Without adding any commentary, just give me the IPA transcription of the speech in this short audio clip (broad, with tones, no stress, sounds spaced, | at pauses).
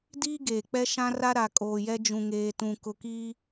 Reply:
d iː˦ ɡ eː˨ k͡p ɛ˦ ʃ ã˦ r a˦ ɾ a˨ kʼ oː˨ j ɛ˦ d͡ʒ ũ˨ ŋ eː˨ t ũ˨ k ʊ˨ k iː˦